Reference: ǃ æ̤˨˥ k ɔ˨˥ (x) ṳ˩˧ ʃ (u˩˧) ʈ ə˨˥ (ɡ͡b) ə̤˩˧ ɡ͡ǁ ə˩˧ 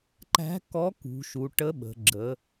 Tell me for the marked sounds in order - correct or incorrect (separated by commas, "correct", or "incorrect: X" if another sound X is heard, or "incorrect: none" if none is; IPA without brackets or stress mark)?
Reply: incorrect: k, correct, incorrect: ɓ